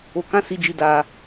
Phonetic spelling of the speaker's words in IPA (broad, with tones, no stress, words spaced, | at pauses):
o˧kã˦si˧d͡ʒi˧ da˧